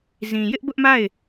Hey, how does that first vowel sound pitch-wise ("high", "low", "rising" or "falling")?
low